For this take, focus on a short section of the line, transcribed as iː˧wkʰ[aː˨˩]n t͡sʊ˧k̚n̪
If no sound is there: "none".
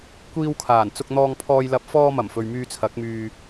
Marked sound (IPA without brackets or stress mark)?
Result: aː˨˩